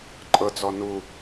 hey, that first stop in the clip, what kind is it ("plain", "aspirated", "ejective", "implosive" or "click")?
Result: click